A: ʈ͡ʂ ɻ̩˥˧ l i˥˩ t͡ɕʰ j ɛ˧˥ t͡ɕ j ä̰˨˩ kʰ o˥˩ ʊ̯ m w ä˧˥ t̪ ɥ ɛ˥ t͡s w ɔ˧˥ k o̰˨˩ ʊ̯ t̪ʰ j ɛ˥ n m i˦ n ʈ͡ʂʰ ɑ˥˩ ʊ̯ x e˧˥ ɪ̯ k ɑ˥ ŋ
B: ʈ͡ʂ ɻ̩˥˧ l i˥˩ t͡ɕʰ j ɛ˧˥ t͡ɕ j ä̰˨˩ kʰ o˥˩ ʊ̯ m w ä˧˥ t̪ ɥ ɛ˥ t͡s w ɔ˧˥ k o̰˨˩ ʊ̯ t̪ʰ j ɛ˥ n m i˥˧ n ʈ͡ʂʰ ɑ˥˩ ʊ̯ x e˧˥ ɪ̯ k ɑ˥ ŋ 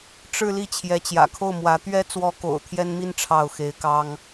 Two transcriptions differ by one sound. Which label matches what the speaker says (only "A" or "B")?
B